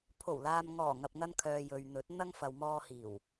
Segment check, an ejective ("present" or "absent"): absent